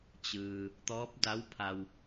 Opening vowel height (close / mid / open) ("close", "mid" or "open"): close